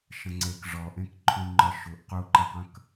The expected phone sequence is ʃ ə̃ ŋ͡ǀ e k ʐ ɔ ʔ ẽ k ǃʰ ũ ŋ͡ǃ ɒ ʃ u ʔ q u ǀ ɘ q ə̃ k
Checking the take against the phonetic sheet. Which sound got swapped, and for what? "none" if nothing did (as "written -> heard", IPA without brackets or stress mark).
ǀ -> ǃ